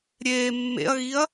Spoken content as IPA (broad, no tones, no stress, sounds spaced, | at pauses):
ɾʲ eː mː ḛ ɐ̯ ɣ i ɐ̯